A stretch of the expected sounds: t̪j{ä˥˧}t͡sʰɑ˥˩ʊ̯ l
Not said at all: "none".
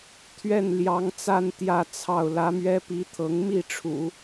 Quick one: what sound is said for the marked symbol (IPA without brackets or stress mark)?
ä˥˧